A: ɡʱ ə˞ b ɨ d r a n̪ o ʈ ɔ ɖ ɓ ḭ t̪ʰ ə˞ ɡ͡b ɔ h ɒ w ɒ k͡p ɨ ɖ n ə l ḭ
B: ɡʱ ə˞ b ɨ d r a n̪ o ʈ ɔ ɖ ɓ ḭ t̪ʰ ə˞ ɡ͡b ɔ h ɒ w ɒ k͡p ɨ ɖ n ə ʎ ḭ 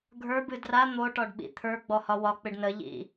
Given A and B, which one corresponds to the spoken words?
B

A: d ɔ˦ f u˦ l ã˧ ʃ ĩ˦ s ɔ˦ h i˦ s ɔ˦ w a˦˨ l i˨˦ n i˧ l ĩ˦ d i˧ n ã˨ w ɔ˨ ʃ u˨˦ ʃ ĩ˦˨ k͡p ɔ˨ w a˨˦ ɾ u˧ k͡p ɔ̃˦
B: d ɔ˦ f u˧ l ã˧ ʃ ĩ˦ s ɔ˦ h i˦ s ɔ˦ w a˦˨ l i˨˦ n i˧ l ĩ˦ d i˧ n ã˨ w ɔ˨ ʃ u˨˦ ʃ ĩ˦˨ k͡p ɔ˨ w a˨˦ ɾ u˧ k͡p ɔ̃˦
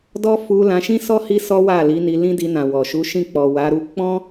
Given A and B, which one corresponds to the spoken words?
B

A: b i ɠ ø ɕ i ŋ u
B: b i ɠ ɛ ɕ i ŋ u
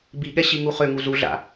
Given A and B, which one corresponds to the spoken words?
B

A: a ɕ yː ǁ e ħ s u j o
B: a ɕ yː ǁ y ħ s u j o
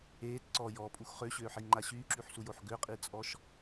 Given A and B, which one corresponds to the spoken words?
B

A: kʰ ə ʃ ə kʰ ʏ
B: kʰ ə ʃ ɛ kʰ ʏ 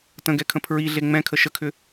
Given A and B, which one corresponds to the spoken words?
A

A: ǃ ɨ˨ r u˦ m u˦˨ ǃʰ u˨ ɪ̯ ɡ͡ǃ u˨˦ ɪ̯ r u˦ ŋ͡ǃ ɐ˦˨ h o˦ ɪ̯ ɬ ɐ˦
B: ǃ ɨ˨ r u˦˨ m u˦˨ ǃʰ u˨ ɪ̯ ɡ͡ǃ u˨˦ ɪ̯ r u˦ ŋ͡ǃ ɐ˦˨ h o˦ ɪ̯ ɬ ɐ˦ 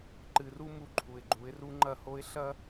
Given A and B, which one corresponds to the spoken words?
A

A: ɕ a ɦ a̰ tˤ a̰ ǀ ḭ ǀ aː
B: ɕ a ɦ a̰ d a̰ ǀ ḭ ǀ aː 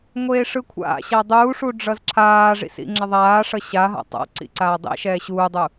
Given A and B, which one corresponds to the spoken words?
A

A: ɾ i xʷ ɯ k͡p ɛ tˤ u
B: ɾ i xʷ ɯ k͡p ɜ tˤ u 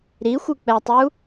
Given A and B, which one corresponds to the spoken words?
A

